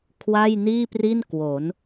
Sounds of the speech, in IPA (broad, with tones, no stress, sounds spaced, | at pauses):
kʰ w a˥˩ j n iː˥˩ p r i˥˩ n k w o˩˦ n